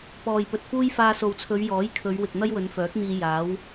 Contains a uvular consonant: no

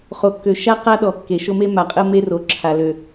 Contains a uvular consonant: yes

